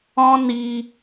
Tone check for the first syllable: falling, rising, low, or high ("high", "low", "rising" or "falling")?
high